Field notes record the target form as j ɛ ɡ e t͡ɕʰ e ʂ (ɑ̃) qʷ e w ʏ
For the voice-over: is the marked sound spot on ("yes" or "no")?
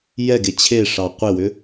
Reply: no